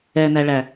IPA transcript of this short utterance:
ɛ n æ ɭ æ

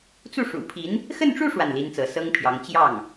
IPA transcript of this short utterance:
t͡s u˥˩ ʂ ṵ˨˩ pʰ i˧˥ n | x ə˥˧ n ʈ͡ʂ u˥˧ ʂ w a˥˩ n l i˥ n t͡s ɤ˧˥ s ɤ˥ ŋ pʰ j ɑ˧˥ ŋ t͡ɕ j ɑ˥˩ ŋ

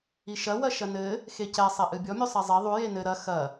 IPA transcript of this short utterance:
i ʃ ɐ w ɐ ʃ ɐ n ɘ | x e c ɛ sˤ e ʔ ɨ bʲ ɔ mʲ u sˤ ɛ zˤ ɛ ðˤ u j e n ɘ ɾ ɐ x ɐ

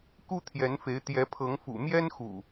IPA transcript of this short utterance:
k u˦ t̪ʰ j ɛ˨˦ n f e˨˦ ɪ̯ t̪ j ɛ˨˦ pʰ ɤ˨˦ ŋ f ṵ˨˩ m j ɛ˦ n x ṵ˨˩

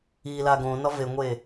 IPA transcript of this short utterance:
i l a ɡ õ n ɒ v e ŋʷ e

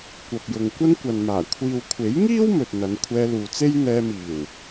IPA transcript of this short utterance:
kʷ ɐ˨ p̚ j ʊ˨ ŋ kʷ ɐ˥ n kʷ ɐ˨ n m aː˨˩ kʷʰ iː˨ w kʷʰ e˨˥ j ŋ iː˥ w m ɵ˨ t̚ n̪ ɐ˨˧ n kʷʰ ɛː˧ l uː˨ t͡s e˥ j n̪ ɛː˧ m iː˨˩ w

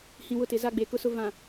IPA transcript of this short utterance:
h ĩ˨ w ʊ˦˨ t ɪ˨ z a˦ ɡ͡b e˨ k ʊ˦ s ʊ˦ v ã˨

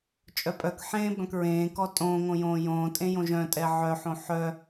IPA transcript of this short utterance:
t͡ʃʼ œ pʼ œ k ħ ẽː b œ̃ k ɹ ẽː k ɔ tʼ õː ŋ õ j õː j õː tʼ ẽ j õ ʒ œ̃ tʼ ɛ ʕ œ ħ õ ħ œ

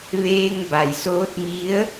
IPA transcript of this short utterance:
ʋ eː˧ ŋ b a˩ j s oː˧˥ t̚ m i˧˥ ə̯

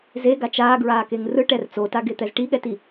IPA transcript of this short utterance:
z e ɡ a t͡ʃ aː ɡ ɹ aː k e ŋ r ɯ ʈ ɛ r t͡s o t a ɡ e t̪ ɛ z ʈ i ɠ ɛ t i

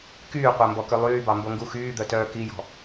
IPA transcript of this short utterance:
k yː qʷ æ m b ɔ k ø lˠ yː b ɑ m b o ŋ ɡ u x yː d̪ œ t œː k i j ɔ̤

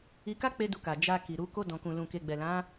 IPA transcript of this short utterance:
i˧ k a˦ k͡p e˦ d u˧ k a˨ d͡ʒ a˧ k i˨ ɾ u˨˦ k o˧ d ɔ̃˨ k ũ˨ l ũ˨ k e˨ ɡ͡b ɛ˨ l ã˨˦

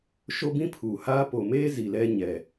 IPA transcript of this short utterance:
ʃ o˦ b ĩ˦ pʰ uː˨ h aː˦ p o˨ m eː˦ z i˨ l ɛ˦ ɲ ɛ˨

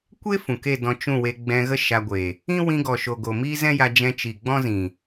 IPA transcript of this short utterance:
kʷ e˦ f ũ˨ k e˦˨ d ɔ̃˧ t͡ʃ ũ˦˨ w e˧ ɡ͡b ɛ̃˧ ɣ ə˦ ʃ a˧ ɡʷ e˨ | ĩ˦ w ĩ˧ ɡ ɔ˨ ʃ o˨ ɡ o˨ m iː˦ z ɛ̃˦ j a˧ d͡ʒ ɛ̃˧ t͡ʃ i˨ ɡ͡b ɔ̃˦ z ĩ˨

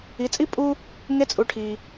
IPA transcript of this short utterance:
i˩˧ t͡sʼ i˥ pʼ u˥ | ŋ e˧˥ t͡sʼ u˩˧ ʈʰ i˩

